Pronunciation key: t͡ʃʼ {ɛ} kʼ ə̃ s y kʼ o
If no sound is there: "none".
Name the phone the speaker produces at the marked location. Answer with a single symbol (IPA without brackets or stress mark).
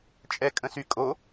ɛ